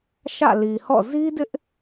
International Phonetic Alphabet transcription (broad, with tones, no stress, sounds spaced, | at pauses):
ʃ ä̰˦˨ l i˨ h ɔ̰˦˨ z i˦ d ɪ˦ ʔ